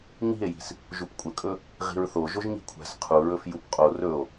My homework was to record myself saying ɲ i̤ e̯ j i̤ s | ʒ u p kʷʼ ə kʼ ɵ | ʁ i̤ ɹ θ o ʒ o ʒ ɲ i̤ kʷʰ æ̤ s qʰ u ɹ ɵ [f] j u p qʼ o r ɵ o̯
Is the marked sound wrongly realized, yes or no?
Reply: no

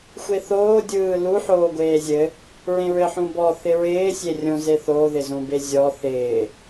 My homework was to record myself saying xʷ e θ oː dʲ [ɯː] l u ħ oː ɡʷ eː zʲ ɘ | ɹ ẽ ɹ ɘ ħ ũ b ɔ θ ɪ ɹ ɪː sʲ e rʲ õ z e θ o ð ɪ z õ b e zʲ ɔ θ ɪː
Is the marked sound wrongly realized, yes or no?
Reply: no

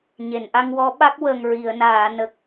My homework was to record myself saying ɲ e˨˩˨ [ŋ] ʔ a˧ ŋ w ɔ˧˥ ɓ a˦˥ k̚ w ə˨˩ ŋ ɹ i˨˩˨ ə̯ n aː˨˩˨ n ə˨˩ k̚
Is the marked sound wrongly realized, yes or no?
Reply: yes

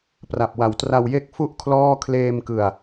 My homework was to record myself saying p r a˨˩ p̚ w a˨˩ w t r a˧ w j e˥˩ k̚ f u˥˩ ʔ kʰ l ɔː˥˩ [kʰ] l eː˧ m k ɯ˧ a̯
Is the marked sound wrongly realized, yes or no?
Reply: no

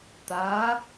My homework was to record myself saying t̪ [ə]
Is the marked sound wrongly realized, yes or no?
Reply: yes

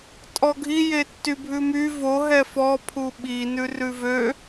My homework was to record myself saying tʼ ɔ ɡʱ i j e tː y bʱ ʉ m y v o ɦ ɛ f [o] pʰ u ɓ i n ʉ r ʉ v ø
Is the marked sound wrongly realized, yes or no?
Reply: yes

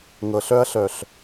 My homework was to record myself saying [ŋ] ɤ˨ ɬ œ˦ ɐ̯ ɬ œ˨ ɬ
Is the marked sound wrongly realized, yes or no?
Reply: no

